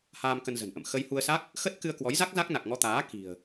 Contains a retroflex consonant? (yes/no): no